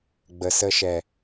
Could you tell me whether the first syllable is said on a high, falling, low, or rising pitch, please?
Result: low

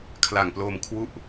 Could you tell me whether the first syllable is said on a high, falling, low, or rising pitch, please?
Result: low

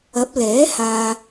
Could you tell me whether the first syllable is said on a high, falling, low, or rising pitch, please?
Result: rising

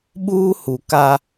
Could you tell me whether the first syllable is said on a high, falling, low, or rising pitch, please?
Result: high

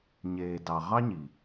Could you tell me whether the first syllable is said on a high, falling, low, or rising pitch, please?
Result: low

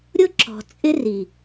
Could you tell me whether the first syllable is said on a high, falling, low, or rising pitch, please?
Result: high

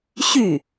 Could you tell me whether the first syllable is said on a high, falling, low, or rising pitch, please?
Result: falling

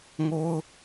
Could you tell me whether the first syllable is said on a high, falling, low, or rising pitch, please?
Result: high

